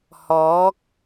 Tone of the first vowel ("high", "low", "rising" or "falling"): rising